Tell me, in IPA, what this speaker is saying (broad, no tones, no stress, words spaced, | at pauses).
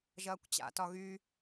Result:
ʒɐːkʷt͡ɕa̰tɒ ɣy